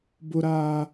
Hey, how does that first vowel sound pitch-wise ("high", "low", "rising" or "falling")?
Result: high